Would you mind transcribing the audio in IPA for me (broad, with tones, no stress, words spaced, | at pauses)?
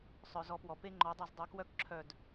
sˤœ˩zɔ˨˩˦pwɔ˩pe˦ ŋ͡ǃɔ˨˩˦dˤu˧˩z dˤu˨˩˦kwœ˦kǁʰœ˧˩d